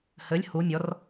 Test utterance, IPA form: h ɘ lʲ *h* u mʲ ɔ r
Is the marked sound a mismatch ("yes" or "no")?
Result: no